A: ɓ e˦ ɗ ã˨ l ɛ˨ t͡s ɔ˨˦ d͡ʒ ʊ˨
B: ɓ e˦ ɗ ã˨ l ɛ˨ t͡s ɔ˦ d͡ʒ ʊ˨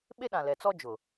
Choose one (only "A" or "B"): B